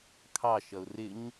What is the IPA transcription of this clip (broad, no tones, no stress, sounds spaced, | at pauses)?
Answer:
kʰ ɑ ʃ ʌ ʊ̯ r ɪ ɲ